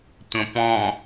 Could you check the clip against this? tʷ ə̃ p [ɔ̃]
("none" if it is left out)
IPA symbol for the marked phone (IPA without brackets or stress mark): ɔ̃